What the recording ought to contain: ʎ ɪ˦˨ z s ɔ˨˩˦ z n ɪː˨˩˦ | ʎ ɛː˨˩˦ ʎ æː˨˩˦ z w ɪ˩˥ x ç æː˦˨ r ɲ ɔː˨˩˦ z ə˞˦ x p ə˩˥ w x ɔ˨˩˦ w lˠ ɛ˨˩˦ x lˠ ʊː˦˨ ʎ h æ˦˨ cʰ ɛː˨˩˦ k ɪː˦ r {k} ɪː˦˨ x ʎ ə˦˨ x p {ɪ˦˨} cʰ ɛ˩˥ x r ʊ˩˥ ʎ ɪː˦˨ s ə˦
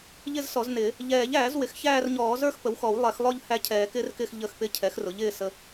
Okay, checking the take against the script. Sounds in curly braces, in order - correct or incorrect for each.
correct, correct

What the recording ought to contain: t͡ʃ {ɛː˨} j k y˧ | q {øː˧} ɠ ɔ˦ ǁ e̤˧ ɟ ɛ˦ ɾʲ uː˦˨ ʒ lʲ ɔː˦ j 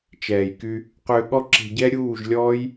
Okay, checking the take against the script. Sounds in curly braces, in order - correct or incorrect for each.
correct, incorrect: ø˧

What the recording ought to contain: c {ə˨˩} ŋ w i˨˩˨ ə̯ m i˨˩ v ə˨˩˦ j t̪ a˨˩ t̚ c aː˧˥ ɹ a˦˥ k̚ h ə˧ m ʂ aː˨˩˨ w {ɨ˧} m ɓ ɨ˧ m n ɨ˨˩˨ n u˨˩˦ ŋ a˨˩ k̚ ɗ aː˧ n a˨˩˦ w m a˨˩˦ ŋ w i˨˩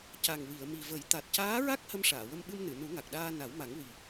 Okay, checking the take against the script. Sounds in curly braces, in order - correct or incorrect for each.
incorrect: a˨˩, incorrect: ə˧

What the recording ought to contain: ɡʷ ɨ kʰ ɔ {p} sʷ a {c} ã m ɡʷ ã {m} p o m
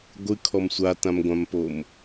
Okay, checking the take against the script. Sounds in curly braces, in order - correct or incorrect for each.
incorrect: m, incorrect: t, correct

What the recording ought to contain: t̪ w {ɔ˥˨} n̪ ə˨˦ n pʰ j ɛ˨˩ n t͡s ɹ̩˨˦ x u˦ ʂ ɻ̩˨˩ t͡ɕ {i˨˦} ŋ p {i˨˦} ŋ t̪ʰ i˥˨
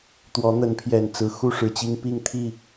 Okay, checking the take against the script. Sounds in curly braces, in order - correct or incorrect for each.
incorrect: ɔ˨˦, incorrect: i˦, incorrect: i˥˨

